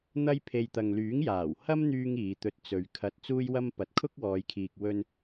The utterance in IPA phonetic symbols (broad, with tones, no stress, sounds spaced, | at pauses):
n̪ ɐ˥ j pʰ e˧ j t̪ ɐ˨ ŋ l yː˨˥ ŋ j aː˨˩ w h ɐ˥ m n̪ yː˧ ŋ iː˨˧ t̪ ɵ˧ t̚ t͡s ɵ˨˧ ɥ kʰ ɐ˧ t̚ t͡s uː˥ j w ɐ˥ m p ɐ˨ t̚ kʰ ʊ˥ k̚ w ɔː˨˧ j kʰ iː˨ k̚ w ɵ˧ n